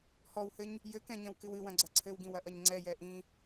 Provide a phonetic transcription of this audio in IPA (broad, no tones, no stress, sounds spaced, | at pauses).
h ɔ w h ɘ ɲ | j ɘ k ɛ̃ ɲ ɐ̃ w k ɨ w ɨ w ɐ̃ ɡ͡ǀ ɐ ǀʰ ɘ w ɡ ĩ w ɐ ʔ ɐ ɲ ŋ͡ǀ ɛ j ɛ ʔ ĩ